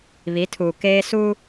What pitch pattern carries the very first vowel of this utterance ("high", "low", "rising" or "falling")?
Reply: rising